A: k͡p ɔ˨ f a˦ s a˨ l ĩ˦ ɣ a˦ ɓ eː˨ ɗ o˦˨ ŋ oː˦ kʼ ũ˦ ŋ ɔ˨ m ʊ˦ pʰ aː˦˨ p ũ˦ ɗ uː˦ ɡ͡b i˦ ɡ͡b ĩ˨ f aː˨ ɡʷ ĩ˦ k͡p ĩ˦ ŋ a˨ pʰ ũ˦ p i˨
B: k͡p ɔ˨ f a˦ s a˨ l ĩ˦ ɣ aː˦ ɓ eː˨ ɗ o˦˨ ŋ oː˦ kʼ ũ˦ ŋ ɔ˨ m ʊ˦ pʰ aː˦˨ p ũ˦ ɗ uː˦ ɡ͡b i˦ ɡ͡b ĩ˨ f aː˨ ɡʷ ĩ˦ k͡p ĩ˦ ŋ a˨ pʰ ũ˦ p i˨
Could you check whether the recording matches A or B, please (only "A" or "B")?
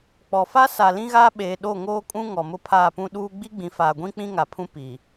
B